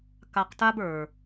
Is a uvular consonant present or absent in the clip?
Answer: present